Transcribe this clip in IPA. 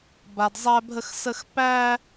b a˧ d zˤ æ˦ bʱ ə˦ x s ə˦ x p æ˦

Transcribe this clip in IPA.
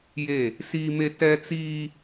j e˦˨ | s iː˦ m e˦ t ɛ˦ t͡s iː˦

